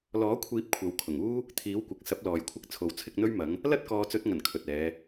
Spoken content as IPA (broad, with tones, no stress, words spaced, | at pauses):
lɔː˨˥kʷʰiː˨˥p̚ kʷʰɐ˨˧wkʰʊ˨˩ŋuː˥ | t̪ʰiː˨˥wkʷɐ˨k̚ sɐ˨˥p̚lɔː˨jkʷʰɪ˧k̚ t͡sʰo˨wt͡sʰɪ˧k̚ n̪ɵ˥ɥmɐ˨˥ŋ | lɐ˥t̚ kɔː˨˧t͡sɵ˨˥t̚ŋɐ˨˩n kʰɵ˨t̚ɛː˨˧